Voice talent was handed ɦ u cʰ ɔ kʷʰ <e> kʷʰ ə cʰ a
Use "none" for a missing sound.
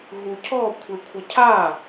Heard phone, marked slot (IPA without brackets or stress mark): e